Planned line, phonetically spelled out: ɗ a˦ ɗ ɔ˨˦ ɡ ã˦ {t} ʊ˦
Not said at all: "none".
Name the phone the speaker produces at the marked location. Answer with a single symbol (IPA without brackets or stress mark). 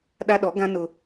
n